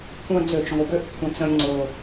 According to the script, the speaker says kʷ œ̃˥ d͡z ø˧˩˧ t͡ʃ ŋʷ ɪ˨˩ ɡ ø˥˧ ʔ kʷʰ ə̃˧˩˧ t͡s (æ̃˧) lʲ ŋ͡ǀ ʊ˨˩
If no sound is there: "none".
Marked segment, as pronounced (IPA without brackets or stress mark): ə̃˧